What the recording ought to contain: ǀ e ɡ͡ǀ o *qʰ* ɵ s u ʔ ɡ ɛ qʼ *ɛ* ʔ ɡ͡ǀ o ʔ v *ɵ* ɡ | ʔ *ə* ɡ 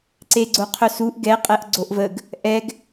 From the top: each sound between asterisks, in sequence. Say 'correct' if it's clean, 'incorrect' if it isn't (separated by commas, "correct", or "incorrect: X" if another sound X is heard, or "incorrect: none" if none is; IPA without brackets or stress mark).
correct, correct, incorrect: ə, incorrect: ɛ